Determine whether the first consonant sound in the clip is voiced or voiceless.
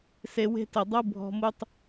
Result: voiceless